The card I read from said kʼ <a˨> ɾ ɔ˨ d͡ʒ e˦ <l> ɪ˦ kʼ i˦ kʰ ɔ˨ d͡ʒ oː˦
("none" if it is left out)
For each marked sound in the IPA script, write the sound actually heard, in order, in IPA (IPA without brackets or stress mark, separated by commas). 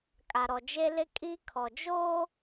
a˨, l